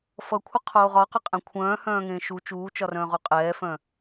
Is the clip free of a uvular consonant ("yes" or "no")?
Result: no